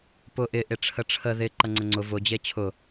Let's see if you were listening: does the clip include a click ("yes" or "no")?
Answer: yes